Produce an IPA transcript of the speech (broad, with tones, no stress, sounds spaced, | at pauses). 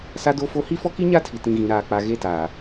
s a˦ d o˦ f o˦ h i˦ f ɔ˦ k i˦ ɲ a˦ tʰ i˨ t ĩ˨ ɣ ĩ˨ ɾ aː˨ k͡p a˨ ɣ e˦ t aː˨